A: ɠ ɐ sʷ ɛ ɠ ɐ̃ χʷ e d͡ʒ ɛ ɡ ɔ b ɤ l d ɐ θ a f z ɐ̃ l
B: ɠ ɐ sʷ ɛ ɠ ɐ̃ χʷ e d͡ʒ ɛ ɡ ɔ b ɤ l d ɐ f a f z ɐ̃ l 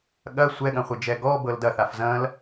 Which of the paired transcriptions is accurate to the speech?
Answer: A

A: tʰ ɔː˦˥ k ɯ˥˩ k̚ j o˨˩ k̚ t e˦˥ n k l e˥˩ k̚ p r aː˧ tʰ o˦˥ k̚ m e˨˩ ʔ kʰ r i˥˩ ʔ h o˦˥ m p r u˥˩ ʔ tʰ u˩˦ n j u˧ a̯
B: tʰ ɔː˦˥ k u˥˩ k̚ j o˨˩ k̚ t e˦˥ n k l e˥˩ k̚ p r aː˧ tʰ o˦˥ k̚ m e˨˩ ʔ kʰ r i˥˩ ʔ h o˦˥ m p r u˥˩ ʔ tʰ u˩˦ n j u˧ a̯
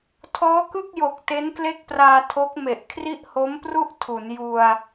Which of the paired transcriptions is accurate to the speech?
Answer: A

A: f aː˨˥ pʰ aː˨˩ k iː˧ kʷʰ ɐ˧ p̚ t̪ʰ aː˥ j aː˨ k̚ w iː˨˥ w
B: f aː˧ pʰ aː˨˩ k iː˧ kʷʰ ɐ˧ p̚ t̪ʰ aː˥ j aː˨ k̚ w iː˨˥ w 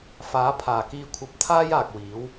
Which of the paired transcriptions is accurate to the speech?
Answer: A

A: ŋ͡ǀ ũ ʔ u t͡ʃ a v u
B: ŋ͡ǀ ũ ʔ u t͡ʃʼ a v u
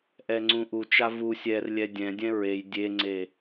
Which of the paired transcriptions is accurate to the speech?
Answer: A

